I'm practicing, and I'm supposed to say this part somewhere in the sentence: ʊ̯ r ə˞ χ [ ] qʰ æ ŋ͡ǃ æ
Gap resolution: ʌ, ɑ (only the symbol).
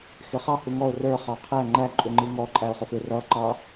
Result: ɑ